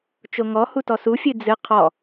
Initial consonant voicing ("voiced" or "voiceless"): voiceless